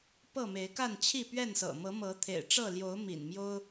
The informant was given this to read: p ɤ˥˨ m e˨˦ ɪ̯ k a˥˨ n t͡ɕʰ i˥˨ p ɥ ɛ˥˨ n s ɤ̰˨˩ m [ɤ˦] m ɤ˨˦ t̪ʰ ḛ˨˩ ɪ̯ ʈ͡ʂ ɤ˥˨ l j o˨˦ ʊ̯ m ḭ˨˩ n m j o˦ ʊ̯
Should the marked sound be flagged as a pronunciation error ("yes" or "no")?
yes